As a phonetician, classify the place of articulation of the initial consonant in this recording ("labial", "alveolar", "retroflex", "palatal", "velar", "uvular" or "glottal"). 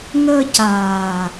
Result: velar